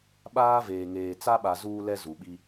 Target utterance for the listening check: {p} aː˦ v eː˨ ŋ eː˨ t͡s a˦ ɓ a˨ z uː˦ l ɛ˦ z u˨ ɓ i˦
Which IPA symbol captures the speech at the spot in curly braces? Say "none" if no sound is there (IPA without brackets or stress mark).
ɓ